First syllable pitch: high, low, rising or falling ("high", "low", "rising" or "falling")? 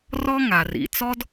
high